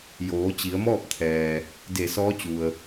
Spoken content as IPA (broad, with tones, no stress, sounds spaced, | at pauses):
j oː˩˧ t͡ɕ i˩˧ ə̯ m ɔː˥˨ p̚ t̪ʰ ɛː˩ | d e˧˩ s ɔː˧˥ t͡ɕ u˩ ə̯